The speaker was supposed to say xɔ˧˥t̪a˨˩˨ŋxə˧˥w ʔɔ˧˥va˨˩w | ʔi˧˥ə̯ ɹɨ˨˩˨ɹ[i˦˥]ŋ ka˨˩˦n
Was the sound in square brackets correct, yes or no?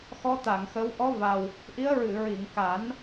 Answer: no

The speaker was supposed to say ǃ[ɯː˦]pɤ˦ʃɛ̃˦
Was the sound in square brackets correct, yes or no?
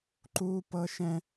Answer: no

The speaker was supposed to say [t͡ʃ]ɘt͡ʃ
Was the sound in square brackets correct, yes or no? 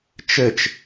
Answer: yes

